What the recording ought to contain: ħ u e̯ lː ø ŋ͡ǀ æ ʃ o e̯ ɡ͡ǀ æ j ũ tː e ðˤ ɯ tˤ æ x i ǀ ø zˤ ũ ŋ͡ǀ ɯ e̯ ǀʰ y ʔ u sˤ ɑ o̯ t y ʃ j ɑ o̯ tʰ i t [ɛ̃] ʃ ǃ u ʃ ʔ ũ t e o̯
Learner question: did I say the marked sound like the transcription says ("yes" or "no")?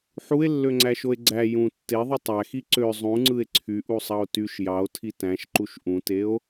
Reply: no